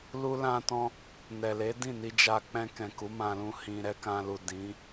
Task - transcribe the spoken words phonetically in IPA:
l u˦ l ã˦ t ɔ̃˦ | n ɛ˨ l e˨˦ d ĩ˦˨ n i˧ d͡ʒ a˧ k͡p ɛ̃˧ k ɛ̃˨ k u˨˦ m ã˧ l ũ˧ h ĩ˧ ɾ ɛ˦ k ã˧ l u˨ d ĩ˨˦

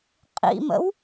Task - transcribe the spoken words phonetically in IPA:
qʼ ḭ m ə̰ w

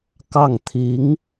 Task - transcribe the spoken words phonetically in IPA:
k ɑ˥˩ ŋ t̪ʰ i˧˥ ŋ

